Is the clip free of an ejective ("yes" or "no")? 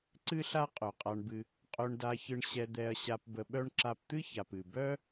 no